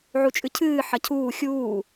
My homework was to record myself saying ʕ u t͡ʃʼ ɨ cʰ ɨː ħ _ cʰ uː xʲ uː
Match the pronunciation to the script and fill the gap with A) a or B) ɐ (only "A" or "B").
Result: B